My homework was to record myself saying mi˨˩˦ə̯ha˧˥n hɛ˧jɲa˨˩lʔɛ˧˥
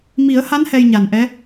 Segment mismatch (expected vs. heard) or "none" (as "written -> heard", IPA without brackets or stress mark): l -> n